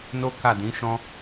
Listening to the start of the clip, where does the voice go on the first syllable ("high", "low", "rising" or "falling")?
high